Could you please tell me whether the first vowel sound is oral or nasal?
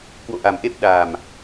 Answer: oral